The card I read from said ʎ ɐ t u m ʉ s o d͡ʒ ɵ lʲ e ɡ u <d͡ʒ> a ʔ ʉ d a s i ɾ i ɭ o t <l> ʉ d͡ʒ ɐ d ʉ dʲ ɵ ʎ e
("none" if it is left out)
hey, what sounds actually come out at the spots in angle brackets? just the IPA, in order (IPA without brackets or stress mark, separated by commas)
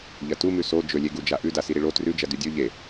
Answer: d͡ʒ, r